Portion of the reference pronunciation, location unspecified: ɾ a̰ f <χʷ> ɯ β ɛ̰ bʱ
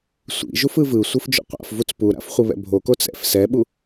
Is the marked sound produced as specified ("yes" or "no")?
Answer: yes